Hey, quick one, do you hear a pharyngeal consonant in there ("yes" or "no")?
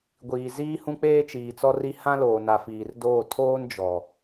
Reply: no